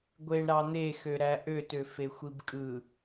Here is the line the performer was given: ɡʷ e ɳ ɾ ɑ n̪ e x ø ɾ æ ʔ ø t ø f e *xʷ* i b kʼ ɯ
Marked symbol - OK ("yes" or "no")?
yes